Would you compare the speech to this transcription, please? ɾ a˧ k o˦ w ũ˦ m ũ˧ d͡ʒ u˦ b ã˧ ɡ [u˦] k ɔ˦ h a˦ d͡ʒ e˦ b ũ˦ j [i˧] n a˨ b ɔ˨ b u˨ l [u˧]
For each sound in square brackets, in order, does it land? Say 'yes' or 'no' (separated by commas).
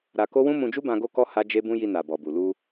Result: no, yes, yes